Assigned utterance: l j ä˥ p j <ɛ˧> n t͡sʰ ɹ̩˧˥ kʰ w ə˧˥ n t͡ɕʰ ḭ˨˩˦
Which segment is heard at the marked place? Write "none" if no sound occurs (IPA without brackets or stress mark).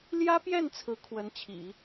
ɛ˥˩